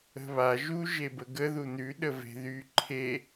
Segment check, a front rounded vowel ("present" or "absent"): present